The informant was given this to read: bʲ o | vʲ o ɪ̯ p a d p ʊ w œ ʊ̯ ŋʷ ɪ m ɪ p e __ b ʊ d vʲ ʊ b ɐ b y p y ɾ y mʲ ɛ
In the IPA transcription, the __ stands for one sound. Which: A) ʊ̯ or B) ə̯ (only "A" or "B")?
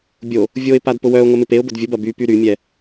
A